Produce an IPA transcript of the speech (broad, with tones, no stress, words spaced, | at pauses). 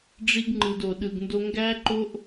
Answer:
ɖ͡ʐi˦ɡŋ͡ǃɯ˧do˧ ɗɯ˧ɡndo˦ ŋɡæ˦ǃo˦ʔ